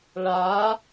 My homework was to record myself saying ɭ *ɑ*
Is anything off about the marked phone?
yes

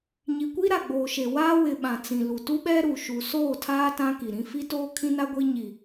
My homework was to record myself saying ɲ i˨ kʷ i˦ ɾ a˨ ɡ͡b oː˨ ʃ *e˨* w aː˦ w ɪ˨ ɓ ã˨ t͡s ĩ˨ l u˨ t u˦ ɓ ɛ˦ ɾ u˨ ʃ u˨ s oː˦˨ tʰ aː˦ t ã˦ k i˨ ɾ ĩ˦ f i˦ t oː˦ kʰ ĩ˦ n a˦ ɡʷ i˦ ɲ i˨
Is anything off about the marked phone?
no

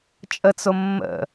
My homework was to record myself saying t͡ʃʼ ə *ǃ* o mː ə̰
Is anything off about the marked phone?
yes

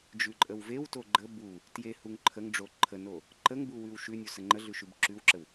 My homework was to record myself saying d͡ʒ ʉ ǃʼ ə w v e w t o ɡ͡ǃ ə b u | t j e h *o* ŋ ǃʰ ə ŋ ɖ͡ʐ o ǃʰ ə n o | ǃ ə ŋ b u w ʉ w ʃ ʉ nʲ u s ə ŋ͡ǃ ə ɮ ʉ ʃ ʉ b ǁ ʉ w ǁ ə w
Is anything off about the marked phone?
yes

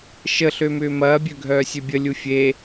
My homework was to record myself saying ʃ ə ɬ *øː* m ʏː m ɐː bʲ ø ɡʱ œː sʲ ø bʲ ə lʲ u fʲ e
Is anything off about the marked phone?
yes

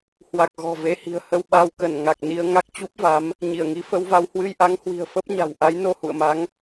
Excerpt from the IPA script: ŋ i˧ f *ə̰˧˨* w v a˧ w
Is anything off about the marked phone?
yes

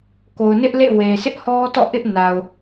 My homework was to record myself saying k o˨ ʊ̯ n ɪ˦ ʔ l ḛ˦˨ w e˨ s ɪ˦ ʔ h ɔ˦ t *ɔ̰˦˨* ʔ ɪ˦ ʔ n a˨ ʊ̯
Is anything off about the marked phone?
no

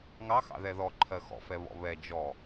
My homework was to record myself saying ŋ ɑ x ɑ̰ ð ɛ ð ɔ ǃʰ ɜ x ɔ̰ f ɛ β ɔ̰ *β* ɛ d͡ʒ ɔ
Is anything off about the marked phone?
no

